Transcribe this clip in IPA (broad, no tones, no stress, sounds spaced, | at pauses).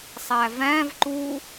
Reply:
sˤ æ v æ̃ v ǃ u